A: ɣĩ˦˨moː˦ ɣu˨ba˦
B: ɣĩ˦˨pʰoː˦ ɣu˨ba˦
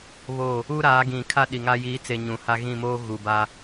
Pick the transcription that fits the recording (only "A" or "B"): A